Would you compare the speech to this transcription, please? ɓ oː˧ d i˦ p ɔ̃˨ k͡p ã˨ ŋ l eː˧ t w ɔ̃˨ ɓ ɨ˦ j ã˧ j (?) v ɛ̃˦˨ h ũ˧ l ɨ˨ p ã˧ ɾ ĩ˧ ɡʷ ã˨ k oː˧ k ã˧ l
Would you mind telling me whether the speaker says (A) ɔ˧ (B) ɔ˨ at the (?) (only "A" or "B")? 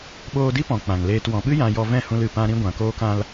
A